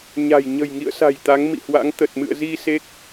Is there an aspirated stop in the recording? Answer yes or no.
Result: no